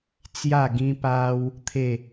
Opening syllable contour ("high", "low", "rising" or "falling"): falling